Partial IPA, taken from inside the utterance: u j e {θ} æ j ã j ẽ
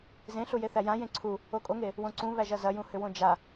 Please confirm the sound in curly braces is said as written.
yes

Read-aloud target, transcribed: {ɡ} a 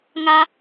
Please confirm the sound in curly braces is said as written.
no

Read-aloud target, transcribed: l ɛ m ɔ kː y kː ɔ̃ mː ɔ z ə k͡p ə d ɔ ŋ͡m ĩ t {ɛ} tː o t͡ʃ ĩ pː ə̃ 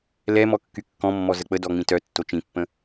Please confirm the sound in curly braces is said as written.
no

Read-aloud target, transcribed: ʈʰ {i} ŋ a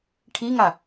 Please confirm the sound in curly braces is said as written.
yes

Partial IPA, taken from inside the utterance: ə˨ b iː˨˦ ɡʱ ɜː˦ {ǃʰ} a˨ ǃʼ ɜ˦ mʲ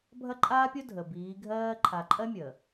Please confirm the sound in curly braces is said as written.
yes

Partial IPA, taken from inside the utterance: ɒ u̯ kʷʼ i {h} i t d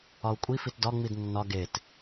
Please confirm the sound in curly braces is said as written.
no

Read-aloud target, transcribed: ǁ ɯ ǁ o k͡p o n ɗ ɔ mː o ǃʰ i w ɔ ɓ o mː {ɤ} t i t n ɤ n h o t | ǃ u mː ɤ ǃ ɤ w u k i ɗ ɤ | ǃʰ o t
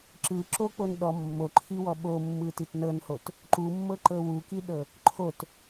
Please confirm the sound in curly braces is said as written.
no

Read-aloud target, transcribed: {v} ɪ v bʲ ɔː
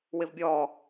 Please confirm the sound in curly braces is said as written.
no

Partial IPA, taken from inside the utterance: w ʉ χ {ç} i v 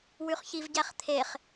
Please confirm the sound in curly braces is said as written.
yes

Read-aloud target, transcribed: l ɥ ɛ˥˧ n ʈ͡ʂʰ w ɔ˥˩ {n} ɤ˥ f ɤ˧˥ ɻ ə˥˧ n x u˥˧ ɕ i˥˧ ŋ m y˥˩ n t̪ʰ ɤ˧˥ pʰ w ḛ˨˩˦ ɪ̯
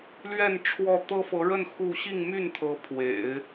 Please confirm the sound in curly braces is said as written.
no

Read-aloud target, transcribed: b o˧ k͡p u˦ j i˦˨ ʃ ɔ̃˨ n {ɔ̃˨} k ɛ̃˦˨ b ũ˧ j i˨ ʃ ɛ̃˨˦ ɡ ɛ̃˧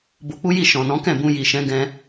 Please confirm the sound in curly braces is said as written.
no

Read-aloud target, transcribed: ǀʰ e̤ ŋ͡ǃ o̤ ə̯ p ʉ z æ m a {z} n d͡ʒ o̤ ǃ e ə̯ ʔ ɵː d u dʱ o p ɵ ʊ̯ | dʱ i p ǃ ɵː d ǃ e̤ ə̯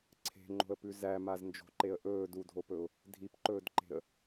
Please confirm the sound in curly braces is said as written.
yes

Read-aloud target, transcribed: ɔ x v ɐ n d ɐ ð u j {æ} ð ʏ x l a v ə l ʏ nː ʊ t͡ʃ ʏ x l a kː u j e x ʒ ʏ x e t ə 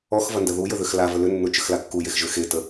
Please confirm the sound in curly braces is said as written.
no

